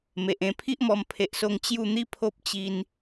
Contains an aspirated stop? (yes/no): yes